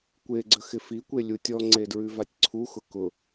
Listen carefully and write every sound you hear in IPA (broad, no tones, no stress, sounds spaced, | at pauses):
kʷ e ɡ͡ǀ ə x ɪ f i kʷ e lʲ u tʲ ɔ ŋ͡ǀ e d ɹ ʉ v a tʲ ǀʰ u x ʊ k ʊ